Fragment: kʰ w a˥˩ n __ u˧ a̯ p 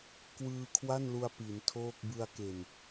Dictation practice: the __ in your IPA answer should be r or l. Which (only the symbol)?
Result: l